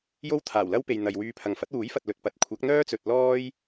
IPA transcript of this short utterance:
j o˥ w t̪ʰ aː˨˩ w l ɐ˥ w p e˨ j n̪ ɐ˨ j w yː˧ pʰ ɐ˨ ŋ f ɐ˨˥ t̚ w uː˨˥ j f ɐ˨ t̚ l ɵ˨ t̚ p ɐ˨ t̚ kʷʰ ɐ˨˥ k̚ n̪ œː˥ t͡s ɵ˨ t̚ l ɔː˥ j

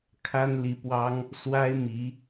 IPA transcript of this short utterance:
kʰ a˥ n l i˧˥ p w ɑ˥ ŋ | s w a˥ ɪ̯ m i˧˥

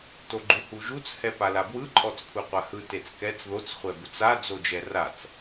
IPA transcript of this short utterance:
t o ɡ͡ǃ u h u ʒ u t͡s h ɛ p a l a b w ɯ ǃʼ ɔ t͡s kʷʰ e qʷ a h ɯ t e t͡s k ɛ t͡s ð o t͡s χʷ ɛ b u t͡s a d͡z o d͡ʒ ɛ r a t͡s

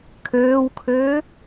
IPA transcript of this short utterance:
kʰ øː w kʰ øː

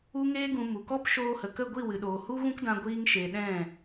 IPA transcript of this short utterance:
u˧ ŋ eː˧ ɡ ũ˨ m u˨ k ɔ˦ p ʃ oː˧ h ə˨ k ə˦˨ ɡʷ i˦˨ w ɨ˨ ɗ oː˨ h u˦ ɣ ũ˦ k d ã˧ ɡʷ iː˧ ŋ ʃ e˨ ɗ ɛ̃˦˨

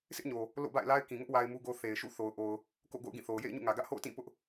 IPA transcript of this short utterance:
s ɪ˦ ʔ ɲ o˨ | l o̰˦˨ b a̰˦˨ ɪ̯ l a˦ ɪ̯ k ĩ˨ ŋ ʊ˦ ʔ w a˦ ɪ̯ m u˦ ɡ o˦ θ e˨ ɪ̯ ʃ ṵ˦˨ θ o˨ ʊ̯ ʔ o˨ ʊ̯ | k o̰˦˨ ɡ o̰˦˨ ʊ̯ ɡ ĩ˦˨ θ o˨ ʊ̯ j ḛ˦˨ ɪ̯ ɲ ṵ˦˨ ŋ ä˨ ɡ ä˦ ʔ h o̰˦˨ ʊ̯ t ĩ˦˨ p ʊ˦ ʔ

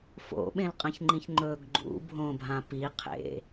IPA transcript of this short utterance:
f o̰ ɓ ẽ l qʼ ɐ̃ ç ŋ͡ǃ ĩ ç ŋ͡ǃ ɵ ɡ ɡ͡ǃ ṵ bʱ õ bʱ ã p i qʰ ḛ

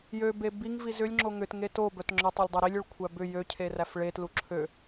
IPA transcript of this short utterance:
j ø b e b i ŋ v i z ʏ lʲ ŋ͡ǁ o ŋ ʏ t ŋ e t o b œ t ŋ͡ǁ œ tˤ ø lʲ dˤ œ ɾ i lʲ ø ɭ kʷʰ æ b ʏ j ø cʰ e r æ f ɭ e t l u ǁʰ ø

